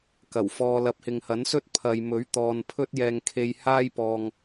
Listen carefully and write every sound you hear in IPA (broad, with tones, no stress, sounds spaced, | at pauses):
k ɐ˨˩ w f ɔː˧ l ɐ˨˥ p̚ h ɪ˨ ŋ h ɐ˨˥ n s ɵ˥ t̚ pʰ ɐ˨ j m ɵ˨˥ ɥ t̪ ɔː˨ n pʰ ɵ˧ t̚ j ɛː˨ ŋ kʰ e˧ j h aː˥ j p ɔː˨ ŋ